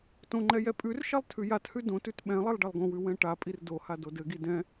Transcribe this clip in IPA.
t õ ŋ͡ǃ ɛ j ɛ pʼ ʉ r ʃ ɛ lˠ tʰ ʉ j a t h ʉ d õ t ʉ t ɓ ɛ̃ lˠ i lˠ ɖ ɛ lˠ ɡ õ w ʉ w ɛ̃ ʈ a pʼ i r d o h a d o d ɘ ɡ i d ɛ̃

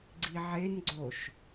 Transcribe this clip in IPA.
ɡ͡ǀ i ʕ e n ɡ͡ǀ o ʃ

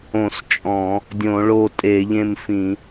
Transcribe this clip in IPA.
õ˧˩˧ s t͡ʃʼ ɔ̃˧˩˧ | dʲ õ˧˩˧ ɭ o˥˨ tʼ e˧˩˧ ʎ ẽ˥˨ m f ĩ˧˩˧

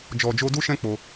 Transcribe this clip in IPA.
d͡ʒ ɔ˨ d͡ʒ o˧ d u˦ ʃ ɛ̃˦ k͡p o˧

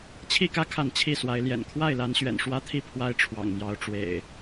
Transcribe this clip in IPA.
t͡ɕʰ i˥˨ k ä˦ kʰ a˥˨ n t͡ɕʰ i˥˨ s w a˨˦ ɪ̯ l j ɛ̰˨˩ n kʰ w a˥˨ ɪ̯ l a˨˦ n ɕ ɥ ɛ̰˨˩ n ʂ w ä˦ t̪ʰ i˥˨ pʰ w a˦ ɪ̯ ʈ͡ʂʰ w ɑ̰˨˩ ŋ m j ɑ˨˦ ʊ̯ ʈ͡ʂ w ḛ˨˩ ɪ̯

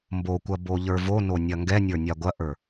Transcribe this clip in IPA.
m b o kʷ ɐ b o ʎ ə˞ v o n o nʲ ɐ ŋ ɡ ɛ nʲ ə˞ nʲ a ɡʷ ɐ ʔ ə˞

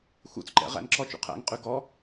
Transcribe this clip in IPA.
x ṵ t͡s ǃ ɛ̰ ʁ æ̰ n ǁ ɔ t͡ʃ ṵ qʰ æ̰ ŋ qʼ ʉ ɡ ɔ

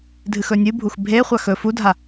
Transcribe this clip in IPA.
dʱ ɨ x ɵ nʲ ɨ bʱ u x bʱ e χʷ a x ɵ f u dʱ a

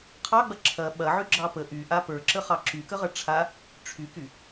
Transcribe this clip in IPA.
qʰ ɑ ɡ͡b ɐ ǁʰ ɐ ɓ ɐ ʕ y ɡ͡ǁ ɑ p ə ʔ y ʔ a p ə˞ ǁ ə χ ɑ ǁ y k ə ʁ ɐ ʈ͡ʂʰ a | ʈ͡ʂʰ y k y

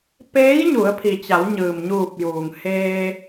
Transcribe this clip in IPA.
p eː˧˥ j ɲ u˩˧ ə̯ pʰ i˩ t͡ɕ a˩˧ w ɲ ɯː˩ m ɲ uː˧˩ p̚ j uː˩ ŋ h eː˧

